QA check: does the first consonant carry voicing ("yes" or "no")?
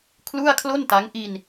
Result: no